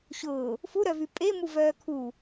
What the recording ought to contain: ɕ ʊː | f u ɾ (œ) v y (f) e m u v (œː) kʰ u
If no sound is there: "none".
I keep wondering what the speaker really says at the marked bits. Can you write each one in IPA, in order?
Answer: œ, pʼ, œː

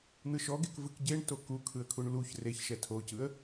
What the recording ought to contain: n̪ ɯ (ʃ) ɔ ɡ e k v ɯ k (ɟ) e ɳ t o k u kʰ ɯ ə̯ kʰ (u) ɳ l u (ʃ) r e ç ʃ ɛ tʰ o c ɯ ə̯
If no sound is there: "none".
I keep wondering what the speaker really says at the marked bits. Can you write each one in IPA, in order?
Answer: ʃ, ɟ, u, ç

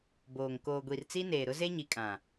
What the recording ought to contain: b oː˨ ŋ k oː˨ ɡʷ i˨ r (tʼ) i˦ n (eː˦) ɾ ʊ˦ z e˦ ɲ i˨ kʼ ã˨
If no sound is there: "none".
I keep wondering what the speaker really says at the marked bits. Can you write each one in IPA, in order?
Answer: t͡s, eː˨

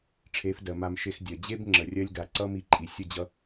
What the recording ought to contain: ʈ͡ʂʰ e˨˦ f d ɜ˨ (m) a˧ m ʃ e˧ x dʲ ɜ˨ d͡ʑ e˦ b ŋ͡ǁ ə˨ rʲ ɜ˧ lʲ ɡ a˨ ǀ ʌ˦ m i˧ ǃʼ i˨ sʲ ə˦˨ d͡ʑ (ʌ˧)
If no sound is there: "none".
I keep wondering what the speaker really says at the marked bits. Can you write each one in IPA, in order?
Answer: m, ʌ˧

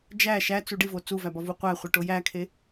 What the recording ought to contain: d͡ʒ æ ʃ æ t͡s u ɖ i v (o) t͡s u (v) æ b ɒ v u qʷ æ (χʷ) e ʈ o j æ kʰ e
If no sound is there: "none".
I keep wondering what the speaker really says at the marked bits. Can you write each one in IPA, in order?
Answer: o, v, χʷ

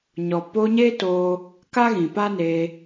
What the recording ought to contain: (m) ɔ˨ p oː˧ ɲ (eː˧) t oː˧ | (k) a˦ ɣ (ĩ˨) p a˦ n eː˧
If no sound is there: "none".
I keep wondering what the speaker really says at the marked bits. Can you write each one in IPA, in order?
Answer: ɲ, eː˦, k, ĩ˨

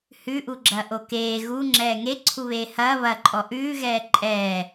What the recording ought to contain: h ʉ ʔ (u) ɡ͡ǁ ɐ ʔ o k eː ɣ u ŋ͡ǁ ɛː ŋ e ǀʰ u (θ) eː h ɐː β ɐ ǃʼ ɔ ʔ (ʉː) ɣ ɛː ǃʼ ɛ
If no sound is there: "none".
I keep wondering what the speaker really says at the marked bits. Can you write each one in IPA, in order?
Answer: u, β, ʉː

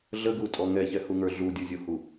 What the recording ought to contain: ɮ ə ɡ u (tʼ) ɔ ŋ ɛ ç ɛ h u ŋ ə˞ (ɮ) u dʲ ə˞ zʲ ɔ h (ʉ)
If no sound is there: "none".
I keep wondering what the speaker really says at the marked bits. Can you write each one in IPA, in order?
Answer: tʼ, ɮ, u

